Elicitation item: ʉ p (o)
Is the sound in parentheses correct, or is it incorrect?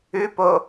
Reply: correct